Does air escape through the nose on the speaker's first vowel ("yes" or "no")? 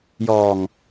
no